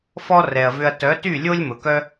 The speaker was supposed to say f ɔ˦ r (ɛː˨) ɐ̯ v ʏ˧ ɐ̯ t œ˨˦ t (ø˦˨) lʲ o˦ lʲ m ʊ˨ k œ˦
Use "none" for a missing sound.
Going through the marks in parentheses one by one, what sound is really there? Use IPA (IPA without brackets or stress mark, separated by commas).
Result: ɛ˨, y˦˨